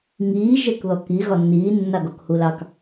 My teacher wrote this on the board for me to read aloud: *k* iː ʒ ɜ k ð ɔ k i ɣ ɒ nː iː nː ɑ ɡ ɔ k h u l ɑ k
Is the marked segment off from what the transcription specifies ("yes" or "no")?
yes